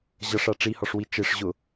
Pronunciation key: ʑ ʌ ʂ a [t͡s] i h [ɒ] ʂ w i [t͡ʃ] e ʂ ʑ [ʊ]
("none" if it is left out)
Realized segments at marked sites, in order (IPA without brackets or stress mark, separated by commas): ʈ͡ʂ, ɒ, t͡ʃ, ʊ